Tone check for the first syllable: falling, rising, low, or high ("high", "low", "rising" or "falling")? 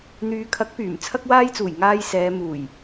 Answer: low